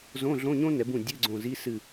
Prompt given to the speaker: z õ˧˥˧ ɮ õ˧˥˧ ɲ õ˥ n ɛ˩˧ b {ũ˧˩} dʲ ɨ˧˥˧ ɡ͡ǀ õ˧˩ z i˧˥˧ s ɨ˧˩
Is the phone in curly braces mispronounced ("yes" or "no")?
no